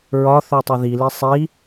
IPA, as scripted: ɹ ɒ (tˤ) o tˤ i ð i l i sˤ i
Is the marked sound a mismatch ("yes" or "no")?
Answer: yes